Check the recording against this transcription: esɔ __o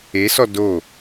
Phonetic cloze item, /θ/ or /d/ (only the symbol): d